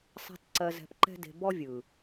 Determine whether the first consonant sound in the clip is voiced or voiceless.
voiceless